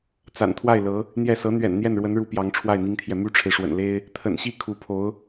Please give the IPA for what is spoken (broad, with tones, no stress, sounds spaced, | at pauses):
t͡s a̰˨˩ n t̪ʰ w a˥˩ ɪ̯ l ɤ˧˥ | n̪ j ɛ˥˩ s ɤ˧˥ n̪ ɥ ɛ̰˨˩ n n̪ j ɛ˥˩ n ɻ w ə˧˥ n ɻ u˧˥ p j ɑ˧˥ ŋ ʈ͡ʂʰ w a˥˩ ɪ̯ n̪ i˥ ŋ t̪ʰ j ɛ˨ m y˥ ʈ͡ʂʰ e˨ ɪ̯ ʂ w ə̰˨˩ n l e˥ ɪ̯ | t̪ʰ ə̰˨˩ n ɕ i˥˩ kʰ u˧˥ pʰ o˧˥ ʊ̯